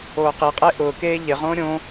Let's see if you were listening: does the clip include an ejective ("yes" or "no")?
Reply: yes